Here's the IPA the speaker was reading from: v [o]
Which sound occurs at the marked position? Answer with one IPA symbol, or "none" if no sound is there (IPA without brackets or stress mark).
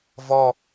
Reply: ɔ